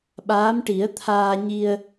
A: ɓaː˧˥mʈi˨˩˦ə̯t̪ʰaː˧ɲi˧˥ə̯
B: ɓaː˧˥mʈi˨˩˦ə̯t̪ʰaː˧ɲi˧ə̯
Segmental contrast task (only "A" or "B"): B